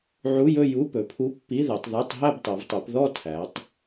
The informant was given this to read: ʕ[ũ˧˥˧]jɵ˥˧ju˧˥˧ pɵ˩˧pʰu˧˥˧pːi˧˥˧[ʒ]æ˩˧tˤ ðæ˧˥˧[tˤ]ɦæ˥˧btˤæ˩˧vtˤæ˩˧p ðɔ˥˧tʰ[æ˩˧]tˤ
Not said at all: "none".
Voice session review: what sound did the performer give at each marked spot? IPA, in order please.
u˧˥˧, ð, tˤ, æ˩˧

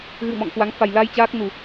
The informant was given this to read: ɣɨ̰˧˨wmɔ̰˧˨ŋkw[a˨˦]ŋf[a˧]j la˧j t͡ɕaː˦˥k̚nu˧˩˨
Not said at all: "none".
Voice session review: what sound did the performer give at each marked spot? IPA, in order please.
a˨˦, a˨˩

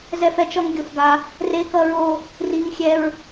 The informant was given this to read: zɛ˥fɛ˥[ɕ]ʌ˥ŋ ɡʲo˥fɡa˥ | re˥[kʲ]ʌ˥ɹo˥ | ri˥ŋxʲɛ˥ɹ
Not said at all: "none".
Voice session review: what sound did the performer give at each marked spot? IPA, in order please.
t͡ʃ, k

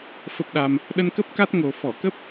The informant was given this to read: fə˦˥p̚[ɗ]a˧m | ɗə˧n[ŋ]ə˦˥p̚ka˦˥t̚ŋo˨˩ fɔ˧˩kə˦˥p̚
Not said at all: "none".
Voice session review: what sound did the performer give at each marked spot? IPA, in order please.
ɗ, k

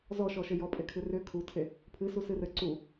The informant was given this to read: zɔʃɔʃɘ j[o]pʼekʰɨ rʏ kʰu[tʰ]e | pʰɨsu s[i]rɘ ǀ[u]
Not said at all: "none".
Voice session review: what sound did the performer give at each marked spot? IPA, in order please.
ɔ, tʰ, ɨ, u

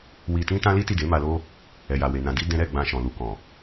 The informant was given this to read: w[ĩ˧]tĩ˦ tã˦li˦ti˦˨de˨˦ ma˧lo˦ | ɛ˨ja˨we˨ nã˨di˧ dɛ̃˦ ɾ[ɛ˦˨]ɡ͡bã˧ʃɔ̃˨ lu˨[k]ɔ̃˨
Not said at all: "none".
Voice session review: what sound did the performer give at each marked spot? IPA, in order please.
i˧, ɛ˦˨, k

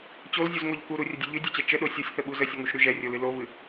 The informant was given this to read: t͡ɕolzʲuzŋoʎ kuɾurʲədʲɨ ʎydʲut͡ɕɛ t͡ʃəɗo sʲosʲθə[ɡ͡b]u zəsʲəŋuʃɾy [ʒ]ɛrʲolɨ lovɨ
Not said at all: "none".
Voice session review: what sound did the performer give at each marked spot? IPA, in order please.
ɓ, ʒ

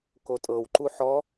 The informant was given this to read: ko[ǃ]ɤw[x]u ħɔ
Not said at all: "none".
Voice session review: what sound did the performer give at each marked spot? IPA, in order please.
tʼ, ǃ

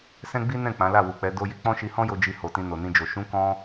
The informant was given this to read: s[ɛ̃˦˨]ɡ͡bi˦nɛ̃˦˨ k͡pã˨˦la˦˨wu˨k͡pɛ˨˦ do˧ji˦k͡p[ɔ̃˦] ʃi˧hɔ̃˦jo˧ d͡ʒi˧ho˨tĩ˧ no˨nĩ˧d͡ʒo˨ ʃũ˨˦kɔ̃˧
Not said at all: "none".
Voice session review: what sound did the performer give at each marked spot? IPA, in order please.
ɛ̃˦, ɔ̃˦

